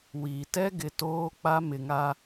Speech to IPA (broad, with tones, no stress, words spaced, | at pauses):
wi˨ tɛ˦ɡɪ˨ toː˦k͡pa˦ mɪ˨ŋa˦